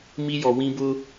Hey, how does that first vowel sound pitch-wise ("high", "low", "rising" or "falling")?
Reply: high